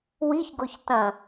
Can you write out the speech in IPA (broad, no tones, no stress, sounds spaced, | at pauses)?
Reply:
w i ç ɡ o ç t ɐ̃